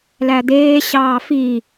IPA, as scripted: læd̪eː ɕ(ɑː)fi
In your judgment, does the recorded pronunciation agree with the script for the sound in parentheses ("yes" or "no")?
yes